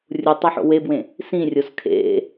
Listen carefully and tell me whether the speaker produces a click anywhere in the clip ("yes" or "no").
no